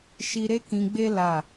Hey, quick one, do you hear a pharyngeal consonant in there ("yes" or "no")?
no